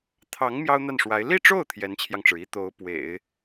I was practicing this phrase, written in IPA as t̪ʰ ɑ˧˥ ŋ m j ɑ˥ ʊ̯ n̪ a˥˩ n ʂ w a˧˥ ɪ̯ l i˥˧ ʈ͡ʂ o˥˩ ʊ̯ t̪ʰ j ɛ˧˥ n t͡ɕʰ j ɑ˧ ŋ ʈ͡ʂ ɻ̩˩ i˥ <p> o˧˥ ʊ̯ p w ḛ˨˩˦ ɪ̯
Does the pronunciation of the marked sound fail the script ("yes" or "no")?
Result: yes